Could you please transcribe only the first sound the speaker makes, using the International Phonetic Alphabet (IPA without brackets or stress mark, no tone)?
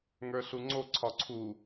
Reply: ŋ